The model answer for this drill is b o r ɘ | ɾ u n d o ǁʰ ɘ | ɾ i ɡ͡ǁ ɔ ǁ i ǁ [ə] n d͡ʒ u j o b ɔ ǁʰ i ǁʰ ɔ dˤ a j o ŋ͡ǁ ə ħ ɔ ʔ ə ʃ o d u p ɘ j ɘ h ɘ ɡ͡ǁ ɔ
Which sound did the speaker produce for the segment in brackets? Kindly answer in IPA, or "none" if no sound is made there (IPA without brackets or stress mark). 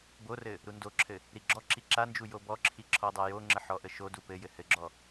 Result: a